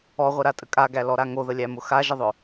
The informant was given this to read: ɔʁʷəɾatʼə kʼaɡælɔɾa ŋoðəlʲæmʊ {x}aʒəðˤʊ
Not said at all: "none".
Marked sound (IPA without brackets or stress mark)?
x